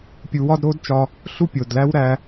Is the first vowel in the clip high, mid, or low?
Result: high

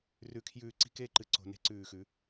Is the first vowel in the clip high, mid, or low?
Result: high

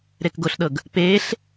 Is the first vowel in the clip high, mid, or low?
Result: mid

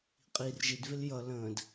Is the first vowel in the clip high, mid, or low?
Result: high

